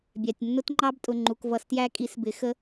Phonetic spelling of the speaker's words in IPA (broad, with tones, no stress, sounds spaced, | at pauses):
bʲ æ˩˧˩ tʲ nː ʊ˦˥ t ŋ͡ǃ ɑ˦˥ b tʼ ʊ˩˧˩ ŋ͡ǃ u˩˧˩ k v ʌ˨˩˦ s t j æ˦˥ kʼ i˩˥ s b ɪ˩˥ x ə˦˥